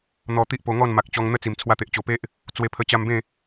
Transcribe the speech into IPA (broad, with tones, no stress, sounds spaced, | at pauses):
n̪ ɔ˧ t̪ i˦ ʔ p o˧ ŋ ɔ˥˧ n m a˨ k̚ t͡ɕ ɔ˧ ŋ n̪ ə˦ t͡s i˨˩ m t͡sʰ w a˧ t̪ e˨ ʔ t͡ɕ o˨˩ p e˦ ʔ | t͡s w e˧ pʰ ə˧ t͡ɕ a˧ m b ẽ˥˧